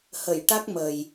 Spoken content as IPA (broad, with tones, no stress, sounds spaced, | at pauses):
h ə˨˩˨ j ʈ a˦˥ k̚ m ə˨˩ j